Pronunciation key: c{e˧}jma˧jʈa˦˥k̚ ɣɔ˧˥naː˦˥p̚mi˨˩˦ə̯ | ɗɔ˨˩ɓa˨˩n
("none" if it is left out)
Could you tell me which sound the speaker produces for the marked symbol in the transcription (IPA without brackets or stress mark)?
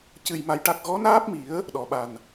ɨ˧